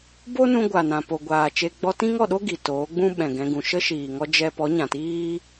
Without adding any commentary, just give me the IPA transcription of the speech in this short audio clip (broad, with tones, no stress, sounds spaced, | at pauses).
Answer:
b o˦ n ũ˧ ɡʷ a˨ n ã˨ p o˨ ɡʷ aː˨ t͡ʃ e˧ ɡ͡b ɔ˧ t ĩ˦ ŋ ɔ˦˨ ɗ o˦ ɡ i˨ t oː˨˦ ɡ͡b ũ˦ ɓ ɛ̃˨ ɡ ɛ̃˧ ɡ ũ˨ ʃ ə˦ ʃ iː˨ ŋ ɔ˦ d͡ʒ ɛ˦ p ɔ˨˦ ɲ ã˨ t iː˦